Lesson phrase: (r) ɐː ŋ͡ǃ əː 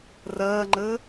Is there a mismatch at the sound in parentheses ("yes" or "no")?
no